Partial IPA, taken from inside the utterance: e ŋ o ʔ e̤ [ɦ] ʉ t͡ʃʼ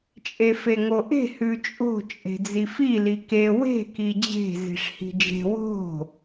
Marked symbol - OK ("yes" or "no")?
no